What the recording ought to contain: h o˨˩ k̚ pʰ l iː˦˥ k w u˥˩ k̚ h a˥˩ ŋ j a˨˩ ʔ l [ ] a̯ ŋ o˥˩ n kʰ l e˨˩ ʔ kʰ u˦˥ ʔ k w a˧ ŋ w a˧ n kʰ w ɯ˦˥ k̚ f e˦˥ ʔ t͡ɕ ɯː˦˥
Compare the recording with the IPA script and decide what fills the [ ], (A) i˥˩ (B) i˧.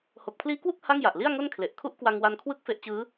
A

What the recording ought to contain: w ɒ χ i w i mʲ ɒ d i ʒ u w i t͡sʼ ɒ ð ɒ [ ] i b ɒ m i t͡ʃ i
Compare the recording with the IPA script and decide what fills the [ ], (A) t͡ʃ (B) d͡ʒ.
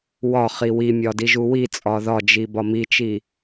B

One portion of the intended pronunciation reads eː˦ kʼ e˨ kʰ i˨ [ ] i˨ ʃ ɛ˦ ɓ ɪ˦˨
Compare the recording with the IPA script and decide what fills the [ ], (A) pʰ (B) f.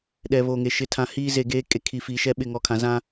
B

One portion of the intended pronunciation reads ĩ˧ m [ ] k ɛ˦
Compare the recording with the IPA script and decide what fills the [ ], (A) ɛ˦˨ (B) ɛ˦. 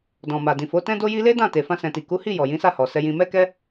B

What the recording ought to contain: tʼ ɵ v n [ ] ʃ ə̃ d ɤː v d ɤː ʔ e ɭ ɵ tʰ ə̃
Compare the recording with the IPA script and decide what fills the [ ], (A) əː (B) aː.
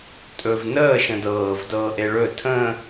A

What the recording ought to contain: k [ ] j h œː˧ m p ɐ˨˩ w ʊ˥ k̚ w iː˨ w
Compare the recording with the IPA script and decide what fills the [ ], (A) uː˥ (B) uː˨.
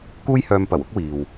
A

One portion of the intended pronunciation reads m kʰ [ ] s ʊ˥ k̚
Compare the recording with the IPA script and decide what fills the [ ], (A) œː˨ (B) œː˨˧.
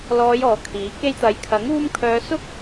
B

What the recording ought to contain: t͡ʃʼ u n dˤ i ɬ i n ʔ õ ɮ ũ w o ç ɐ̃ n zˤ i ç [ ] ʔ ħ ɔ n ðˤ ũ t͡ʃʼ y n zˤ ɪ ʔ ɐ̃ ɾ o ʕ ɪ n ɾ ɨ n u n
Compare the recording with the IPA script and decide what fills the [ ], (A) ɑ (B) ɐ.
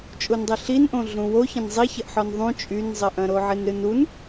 B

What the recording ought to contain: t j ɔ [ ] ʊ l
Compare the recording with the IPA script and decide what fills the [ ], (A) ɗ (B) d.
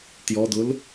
B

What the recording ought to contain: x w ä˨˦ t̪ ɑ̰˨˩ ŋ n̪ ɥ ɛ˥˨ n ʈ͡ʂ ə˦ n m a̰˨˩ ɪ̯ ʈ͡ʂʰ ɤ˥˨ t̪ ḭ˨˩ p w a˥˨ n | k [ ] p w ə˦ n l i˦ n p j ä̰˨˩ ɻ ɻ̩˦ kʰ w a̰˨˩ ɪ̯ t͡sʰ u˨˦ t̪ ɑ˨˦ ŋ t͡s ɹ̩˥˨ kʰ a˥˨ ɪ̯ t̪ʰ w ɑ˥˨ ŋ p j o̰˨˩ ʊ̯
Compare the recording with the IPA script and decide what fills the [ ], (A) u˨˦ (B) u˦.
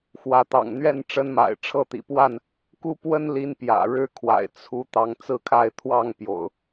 B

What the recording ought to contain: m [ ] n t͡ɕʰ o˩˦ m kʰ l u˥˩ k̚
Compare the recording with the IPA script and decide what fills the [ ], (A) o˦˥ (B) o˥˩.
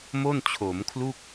B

